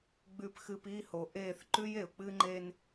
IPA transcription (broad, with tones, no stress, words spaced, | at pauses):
ɡ͡bʉ˨pxɨ˨p i˦˨ho˨ʔe˦˨θ ǃʉ˦je˨ʊ̯k͡pɨ˦ŋ͡ǃe˦n